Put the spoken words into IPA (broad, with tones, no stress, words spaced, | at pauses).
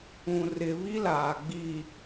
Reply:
ũ˨rɪ˨ βi˦laː˨ ɡ͡bi˨